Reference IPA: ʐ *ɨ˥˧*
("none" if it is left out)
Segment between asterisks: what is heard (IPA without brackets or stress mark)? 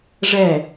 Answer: ɛ˥˧